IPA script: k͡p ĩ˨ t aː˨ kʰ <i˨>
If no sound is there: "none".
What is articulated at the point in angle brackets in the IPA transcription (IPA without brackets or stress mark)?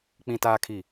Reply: i˨